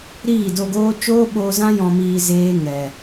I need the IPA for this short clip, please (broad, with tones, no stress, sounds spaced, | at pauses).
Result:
ɾ iː˦˨ d o˧ ɡ oː˦ t͡ʃ oː˦ ɓ oː˧ z ã˦ j ɔ̃˧ m iː˧ z eː˦ ŋ ɛ˨